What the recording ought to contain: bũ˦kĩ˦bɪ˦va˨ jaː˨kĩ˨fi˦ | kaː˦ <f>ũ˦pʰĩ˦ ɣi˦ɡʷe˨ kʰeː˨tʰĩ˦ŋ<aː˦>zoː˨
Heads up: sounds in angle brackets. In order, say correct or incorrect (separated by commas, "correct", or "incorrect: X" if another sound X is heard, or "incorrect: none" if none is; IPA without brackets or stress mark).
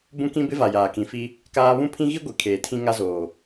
incorrect: β, incorrect: a˦